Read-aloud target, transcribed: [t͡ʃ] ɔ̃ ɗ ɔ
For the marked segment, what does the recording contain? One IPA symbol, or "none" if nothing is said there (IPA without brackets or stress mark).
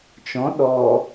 t͡ʃ